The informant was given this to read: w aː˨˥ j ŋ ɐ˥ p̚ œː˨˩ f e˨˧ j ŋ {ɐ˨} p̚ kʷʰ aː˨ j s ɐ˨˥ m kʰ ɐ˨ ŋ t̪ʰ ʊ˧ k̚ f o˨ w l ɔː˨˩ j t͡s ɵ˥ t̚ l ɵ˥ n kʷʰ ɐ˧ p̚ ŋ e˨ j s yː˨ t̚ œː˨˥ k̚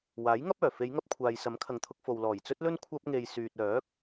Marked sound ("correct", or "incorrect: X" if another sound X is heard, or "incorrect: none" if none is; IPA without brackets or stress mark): incorrect: ɐ˧